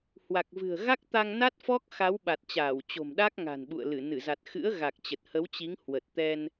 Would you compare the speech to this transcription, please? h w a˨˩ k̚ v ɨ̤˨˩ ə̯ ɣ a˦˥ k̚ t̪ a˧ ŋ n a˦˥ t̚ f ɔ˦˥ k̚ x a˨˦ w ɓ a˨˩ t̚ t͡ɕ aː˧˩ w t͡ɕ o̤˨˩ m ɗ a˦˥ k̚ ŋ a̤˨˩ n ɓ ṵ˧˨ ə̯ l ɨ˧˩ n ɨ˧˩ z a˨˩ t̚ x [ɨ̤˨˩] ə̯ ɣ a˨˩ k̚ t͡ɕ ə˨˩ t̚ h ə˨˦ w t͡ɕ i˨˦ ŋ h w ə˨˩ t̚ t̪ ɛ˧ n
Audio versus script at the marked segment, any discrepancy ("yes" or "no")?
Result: yes